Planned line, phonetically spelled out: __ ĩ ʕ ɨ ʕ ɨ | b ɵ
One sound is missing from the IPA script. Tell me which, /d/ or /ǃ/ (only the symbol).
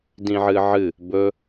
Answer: d